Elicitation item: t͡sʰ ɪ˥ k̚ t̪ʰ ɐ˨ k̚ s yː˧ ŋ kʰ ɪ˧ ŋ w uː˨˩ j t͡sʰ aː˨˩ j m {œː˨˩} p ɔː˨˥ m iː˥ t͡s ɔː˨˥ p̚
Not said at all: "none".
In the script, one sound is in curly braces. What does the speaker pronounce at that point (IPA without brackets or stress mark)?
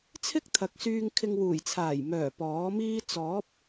œː˨˩